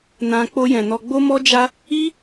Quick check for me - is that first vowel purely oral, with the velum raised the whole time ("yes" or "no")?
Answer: no